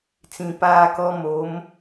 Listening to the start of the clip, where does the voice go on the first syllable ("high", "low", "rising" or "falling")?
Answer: low